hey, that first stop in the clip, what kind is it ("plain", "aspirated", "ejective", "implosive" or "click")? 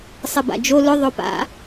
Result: plain